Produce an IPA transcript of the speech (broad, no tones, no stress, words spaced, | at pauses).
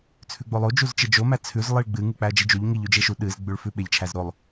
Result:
t͡sʰʉɡ͡bolˠo d͡ʒuzt͡ʃed͡ʒo mæt͡sʰʉz lˠɨɭɡ͡bɨ ŋɨk͡pæɐ̯d͡ʒid͡ʒuʎ ŋiʎ ʉd͡ʒeʃu ɗɨz ɡ͡bʉɭfʉɓeʎ t͡ʃʰæzɾolˠ